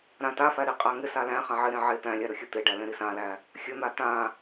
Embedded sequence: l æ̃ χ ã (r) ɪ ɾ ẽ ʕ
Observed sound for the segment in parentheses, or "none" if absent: ʕ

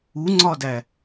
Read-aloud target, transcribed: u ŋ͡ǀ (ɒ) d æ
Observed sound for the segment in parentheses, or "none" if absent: ɒ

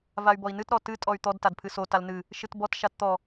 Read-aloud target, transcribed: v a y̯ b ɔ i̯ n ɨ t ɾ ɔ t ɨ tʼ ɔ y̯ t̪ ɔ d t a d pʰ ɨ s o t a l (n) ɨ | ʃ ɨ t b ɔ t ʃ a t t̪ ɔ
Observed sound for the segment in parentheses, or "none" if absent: n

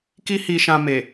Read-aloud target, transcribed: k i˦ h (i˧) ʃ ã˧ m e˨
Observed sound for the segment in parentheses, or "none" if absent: i˧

